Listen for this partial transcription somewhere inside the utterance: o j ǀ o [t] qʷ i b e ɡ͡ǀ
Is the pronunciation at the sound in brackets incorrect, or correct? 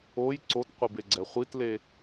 correct